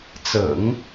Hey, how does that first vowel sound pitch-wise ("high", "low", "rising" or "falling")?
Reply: low